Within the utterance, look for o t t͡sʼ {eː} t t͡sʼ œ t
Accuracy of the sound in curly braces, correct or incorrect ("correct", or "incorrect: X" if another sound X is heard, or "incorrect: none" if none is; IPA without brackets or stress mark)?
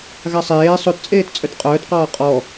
correct